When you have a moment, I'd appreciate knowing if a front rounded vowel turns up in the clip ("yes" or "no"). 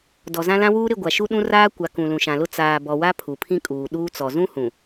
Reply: no